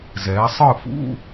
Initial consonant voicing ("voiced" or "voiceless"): voiced